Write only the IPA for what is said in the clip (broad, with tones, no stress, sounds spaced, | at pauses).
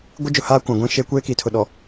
ɡʷ ɪ˦ d͡ʒ ʊ˨ h aː˦ kʷ ã˨ ɡʷ ĩ˦˨ ʃ eː˦ kʷ eː˦ k i˨ tʰ ʊ˨ ɗ ɔ˨